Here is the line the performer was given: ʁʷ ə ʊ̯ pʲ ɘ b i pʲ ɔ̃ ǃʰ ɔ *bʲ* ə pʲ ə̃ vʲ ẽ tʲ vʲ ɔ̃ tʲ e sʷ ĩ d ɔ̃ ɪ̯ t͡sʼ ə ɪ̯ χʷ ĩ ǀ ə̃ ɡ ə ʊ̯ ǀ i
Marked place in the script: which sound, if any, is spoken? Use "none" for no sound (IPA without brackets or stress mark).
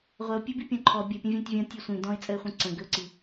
bʲ